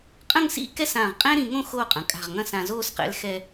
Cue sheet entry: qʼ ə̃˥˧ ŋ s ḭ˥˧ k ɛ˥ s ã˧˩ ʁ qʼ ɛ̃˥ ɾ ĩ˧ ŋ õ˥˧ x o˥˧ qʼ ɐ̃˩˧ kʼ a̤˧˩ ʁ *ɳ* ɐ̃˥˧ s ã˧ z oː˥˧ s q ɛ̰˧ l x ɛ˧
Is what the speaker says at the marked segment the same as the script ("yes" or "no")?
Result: no